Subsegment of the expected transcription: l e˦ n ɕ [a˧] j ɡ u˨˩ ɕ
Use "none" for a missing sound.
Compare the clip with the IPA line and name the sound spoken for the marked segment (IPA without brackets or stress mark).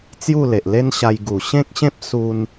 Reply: a˧